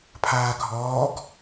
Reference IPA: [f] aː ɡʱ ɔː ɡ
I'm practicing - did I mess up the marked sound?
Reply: yes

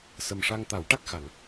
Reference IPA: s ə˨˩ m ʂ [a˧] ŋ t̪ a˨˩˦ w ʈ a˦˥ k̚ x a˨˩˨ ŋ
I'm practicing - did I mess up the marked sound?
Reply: no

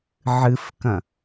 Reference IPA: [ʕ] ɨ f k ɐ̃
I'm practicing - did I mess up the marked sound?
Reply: no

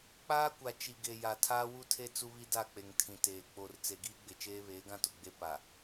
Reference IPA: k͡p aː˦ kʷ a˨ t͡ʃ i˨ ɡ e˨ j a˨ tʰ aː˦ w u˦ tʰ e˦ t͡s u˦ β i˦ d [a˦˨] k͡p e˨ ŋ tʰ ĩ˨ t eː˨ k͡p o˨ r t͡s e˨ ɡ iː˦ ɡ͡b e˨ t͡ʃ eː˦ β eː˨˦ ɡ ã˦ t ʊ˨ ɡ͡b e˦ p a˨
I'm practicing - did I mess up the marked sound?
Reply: no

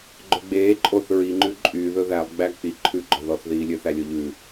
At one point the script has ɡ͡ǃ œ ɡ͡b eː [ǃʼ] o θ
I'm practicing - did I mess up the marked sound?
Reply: no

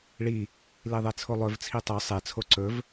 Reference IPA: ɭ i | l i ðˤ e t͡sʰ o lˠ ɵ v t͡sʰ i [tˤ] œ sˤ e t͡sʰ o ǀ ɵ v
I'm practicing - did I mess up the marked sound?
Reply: no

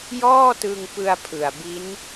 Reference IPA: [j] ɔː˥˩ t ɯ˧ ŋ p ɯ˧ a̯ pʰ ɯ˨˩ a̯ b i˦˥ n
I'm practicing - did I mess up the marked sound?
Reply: no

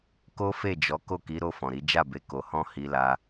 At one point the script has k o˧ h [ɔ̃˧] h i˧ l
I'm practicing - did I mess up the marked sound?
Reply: yes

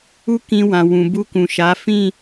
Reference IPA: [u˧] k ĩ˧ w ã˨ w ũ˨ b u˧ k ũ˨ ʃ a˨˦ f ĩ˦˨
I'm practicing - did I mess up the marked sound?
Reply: yes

